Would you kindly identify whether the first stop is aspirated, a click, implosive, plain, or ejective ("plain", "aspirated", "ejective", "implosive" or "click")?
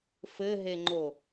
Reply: click